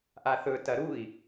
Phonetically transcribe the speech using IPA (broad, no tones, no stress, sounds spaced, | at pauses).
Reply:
ʔ a θ ɵ t ɐ ɾ u i̯